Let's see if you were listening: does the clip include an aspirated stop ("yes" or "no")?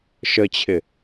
yes